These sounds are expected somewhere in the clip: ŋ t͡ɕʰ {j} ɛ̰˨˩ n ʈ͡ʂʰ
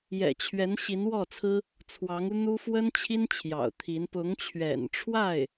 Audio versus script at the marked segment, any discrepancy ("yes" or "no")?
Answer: yes